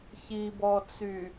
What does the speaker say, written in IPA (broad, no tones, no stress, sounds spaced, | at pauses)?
ç i b ɔ t͡s y